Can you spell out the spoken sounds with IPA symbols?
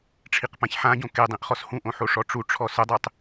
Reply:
ʈ͡ʂʰ i q p ã ç ħ ã ɟ õ k e dˤ ĩ ʔ χ ɔ s h ũ ʔ õ ħ o ʂ ɔ ʈ͡ʂ u ʈ͡ʂʰ ɔ s ʊ dˤ e tˤ

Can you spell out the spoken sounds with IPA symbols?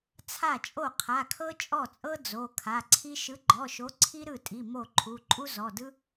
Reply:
t͡sʰ a˥˩ t͡ʃʼ o˥˩ qʰ a˩˧˩ kʰ ɤ˥ t͡ʃʼ ɔ˥˩ t͡sʼ ɤ˥ d͡z o˩˧˩ kʰ a˩˧˩ ǀʰ i˥ ʃ ɯ˨˥ ɡ͡ǃ ɔ˩˧˩ ʃ o˨˥ ǀʰ i˥ ɾ ɯ˥˩ tʼ i˩˧˩ m o˥˩ ǃʰ u˩˧˩ ǃʼ u˥ z ɔ˩˧˩ d ɯ˥

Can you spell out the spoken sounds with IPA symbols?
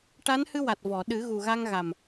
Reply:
ʈ a˧˥ n h ɨ˧ w a˨˩ t̚ v ɔ˨˩˨ ɗ ɨ˨˩˦ ɣ u˨˩ ɣ a˧ ŋ ɣ a˨˩ m

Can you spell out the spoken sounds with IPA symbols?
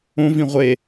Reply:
õ v ĩ ʁʷ e

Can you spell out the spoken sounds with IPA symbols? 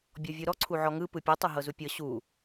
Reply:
bʲ ɔ vʲ u ɾ ɔ ǀʰ u ʕ ɔ ŋ ɯ p ɯ pʲ e tˤ u ɦ ɤ z u pʲ ɤ ɕ u

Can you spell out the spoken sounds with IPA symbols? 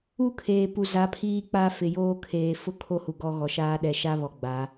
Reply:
u˦ kʰ eː˨ p u˨ z a˨˦ pʰ iː˦ k͡p a˦ f ɪ˨ j oː˦ kʰ eː˨ f ʊ˦ kʰ o˦ h u˨ ɡ ɔ˦ ɣ ɔ˨ ʃ aː˦ ɗ ɛ˨ ʃ a˦ β ɔ˨ ɡ͡b a˨˦

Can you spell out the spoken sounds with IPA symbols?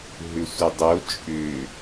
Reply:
ɦ ʏ sʷ ə dˤ o t͡ʃʼ ʏ

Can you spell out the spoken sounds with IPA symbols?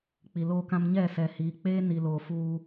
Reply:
k͡p i˨ l oː˦ k ã˦ m ɲ ɛ˦˨ s ɛ˨ h iː˨ k͡p eː˦ n i˨ l oː˨ f uː˦

